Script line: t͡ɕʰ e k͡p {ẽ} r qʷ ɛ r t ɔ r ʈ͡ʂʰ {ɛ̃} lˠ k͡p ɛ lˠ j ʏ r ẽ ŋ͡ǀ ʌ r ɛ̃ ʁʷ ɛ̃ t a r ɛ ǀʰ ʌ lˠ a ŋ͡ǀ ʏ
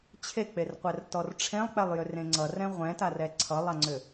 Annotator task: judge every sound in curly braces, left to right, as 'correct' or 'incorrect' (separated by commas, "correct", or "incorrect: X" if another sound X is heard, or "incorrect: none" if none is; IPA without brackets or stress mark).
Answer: incorrect: e, incorrect: ẽ